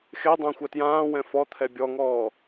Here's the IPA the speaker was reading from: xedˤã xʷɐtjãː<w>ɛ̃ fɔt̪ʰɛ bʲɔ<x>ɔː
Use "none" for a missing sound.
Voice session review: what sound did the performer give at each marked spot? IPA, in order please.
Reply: w, ŋ

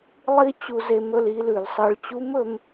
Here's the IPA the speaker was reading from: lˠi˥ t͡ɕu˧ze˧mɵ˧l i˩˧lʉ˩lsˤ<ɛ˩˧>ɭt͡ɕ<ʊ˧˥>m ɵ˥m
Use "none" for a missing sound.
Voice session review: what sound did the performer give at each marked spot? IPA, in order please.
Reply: ɨ˩˧, u˧˥

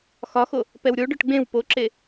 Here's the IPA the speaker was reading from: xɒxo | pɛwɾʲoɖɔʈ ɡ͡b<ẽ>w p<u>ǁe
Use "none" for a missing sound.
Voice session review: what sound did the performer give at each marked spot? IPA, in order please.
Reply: ẽ, o

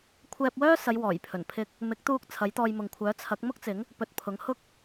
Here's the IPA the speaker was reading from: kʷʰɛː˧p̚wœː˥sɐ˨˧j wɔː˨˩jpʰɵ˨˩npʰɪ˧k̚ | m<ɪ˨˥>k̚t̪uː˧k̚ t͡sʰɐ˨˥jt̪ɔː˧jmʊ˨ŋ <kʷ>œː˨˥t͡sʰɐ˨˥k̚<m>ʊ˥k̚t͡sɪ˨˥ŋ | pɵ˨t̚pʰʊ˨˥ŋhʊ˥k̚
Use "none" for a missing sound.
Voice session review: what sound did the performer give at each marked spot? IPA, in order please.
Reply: ɪ˨˥, kʷʰ, m

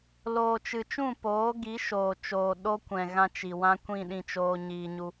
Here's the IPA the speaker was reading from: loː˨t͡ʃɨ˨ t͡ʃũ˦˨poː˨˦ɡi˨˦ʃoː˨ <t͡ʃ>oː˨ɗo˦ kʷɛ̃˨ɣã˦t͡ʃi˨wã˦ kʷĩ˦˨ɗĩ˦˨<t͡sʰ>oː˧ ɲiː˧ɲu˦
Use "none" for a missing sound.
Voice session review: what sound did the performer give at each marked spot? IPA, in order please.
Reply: t͡ʃ, t͡ʃ

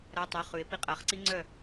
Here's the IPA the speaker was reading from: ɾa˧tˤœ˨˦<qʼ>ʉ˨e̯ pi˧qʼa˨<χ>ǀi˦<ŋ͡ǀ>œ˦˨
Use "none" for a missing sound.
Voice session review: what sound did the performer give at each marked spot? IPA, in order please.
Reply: χ, χ, ŋ͡ǀ

